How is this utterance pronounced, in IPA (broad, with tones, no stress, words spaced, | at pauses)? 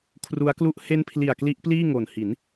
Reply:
kʰru˦˥a̯klu˥˩ʔ he˦˥npʰli˨˩a̯ kli˦˥ʔpliː˥˩ŋo˨˩n hi˩˦n